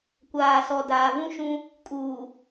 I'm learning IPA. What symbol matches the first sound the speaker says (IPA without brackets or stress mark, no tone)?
kʷ